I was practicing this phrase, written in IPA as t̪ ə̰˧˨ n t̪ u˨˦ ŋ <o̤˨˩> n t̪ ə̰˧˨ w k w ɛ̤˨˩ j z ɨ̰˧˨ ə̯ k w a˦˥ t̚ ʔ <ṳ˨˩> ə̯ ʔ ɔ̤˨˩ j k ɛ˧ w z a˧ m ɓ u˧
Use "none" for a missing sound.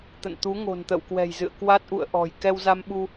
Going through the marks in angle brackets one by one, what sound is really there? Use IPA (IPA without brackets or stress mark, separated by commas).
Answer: o̤˨˩, ṵ˧˨